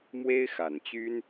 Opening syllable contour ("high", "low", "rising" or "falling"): high